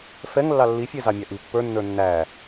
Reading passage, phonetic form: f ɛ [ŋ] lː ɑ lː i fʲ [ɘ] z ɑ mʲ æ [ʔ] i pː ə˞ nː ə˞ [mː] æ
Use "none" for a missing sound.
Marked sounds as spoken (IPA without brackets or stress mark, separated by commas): ŋ, ɛ, ʔ, nː